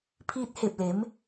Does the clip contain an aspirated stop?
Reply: yes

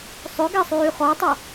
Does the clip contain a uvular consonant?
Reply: yes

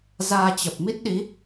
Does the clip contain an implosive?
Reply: yes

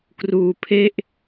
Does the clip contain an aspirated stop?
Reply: yes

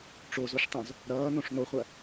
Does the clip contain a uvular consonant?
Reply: yes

